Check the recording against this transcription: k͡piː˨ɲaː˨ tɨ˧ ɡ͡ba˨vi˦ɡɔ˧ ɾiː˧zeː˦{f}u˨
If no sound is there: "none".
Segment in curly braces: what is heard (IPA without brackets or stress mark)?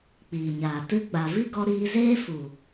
f